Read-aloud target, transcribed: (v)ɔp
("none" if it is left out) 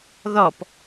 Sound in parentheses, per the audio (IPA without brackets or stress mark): ð